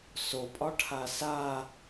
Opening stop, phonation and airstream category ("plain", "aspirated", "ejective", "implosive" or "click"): ejective